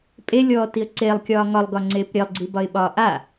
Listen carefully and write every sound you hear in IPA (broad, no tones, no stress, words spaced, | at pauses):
pʼelʲɔːtiə̯ ǀeːlˠkʲɒː ŋɒlˠɡɒŋ͡ǀeːp ɾʲelˠɡ͡ǀibɒɪ̯ɓɒː ʔa